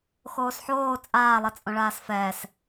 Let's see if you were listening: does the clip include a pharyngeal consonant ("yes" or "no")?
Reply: yes